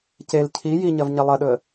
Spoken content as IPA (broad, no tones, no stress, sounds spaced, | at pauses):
c e l cʰ i j i ɲ ɐ v ɲ ɐ lˠ ɐ ɗ ɵ ə̯